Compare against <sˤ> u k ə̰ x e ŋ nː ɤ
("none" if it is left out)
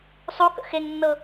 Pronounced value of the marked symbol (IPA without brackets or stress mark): sˤ